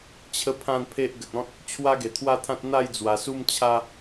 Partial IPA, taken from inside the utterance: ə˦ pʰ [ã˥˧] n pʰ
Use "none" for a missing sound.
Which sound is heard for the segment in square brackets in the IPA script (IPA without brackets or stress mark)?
ã˥˧